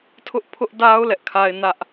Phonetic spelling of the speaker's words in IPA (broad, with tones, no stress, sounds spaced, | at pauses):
tʰ ʊ˦ ʔ pʰ ʊ˦ ʔ d a˦ ʊ̯ l ɛ˦ ʔ kʰ a˦ ɪ̯ n ä˦ ʔ